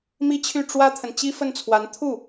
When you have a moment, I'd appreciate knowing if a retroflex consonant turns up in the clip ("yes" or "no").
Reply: yes